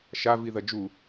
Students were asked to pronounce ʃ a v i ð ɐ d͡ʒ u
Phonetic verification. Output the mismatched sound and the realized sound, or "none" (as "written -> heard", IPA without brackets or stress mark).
none